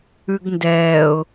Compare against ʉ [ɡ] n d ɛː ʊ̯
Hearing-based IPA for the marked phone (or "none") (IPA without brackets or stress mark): ɡ